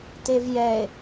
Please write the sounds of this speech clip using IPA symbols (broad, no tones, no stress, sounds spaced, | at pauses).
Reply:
t e v j ɛ e̯